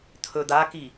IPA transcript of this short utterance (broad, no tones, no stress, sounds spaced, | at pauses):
t̪ʰ ɵ d̪ a k i